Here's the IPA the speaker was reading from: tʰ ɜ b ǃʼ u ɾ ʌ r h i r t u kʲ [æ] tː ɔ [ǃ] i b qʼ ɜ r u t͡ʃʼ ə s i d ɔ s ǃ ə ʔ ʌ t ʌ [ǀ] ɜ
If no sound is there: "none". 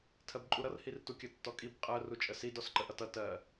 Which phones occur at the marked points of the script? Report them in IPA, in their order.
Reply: ə, kʼ, t

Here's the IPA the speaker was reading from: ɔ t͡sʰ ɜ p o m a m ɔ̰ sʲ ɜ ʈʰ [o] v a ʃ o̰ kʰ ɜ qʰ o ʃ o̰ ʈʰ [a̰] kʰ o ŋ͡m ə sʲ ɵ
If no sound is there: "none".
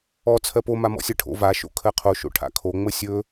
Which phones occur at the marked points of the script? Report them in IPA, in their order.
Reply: o̰, a̰

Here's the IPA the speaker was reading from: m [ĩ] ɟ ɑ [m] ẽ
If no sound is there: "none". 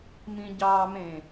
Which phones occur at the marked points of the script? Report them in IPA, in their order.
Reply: ĩ, m

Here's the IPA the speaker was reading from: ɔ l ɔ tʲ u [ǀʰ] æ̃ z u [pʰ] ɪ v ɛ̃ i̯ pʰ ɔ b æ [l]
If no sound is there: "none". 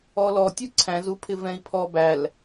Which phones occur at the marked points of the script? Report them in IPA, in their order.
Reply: ǀʰ, pʰ, l

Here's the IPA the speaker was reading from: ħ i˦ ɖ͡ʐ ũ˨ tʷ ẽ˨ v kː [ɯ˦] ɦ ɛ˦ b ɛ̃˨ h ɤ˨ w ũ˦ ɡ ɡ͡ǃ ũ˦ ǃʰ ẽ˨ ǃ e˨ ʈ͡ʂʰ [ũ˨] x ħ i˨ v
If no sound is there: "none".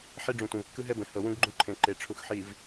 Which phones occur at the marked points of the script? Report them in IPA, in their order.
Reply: ɯ˦, u˨

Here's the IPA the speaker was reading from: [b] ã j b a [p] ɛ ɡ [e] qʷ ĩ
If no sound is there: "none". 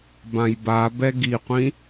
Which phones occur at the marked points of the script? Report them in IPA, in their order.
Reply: b, b, i

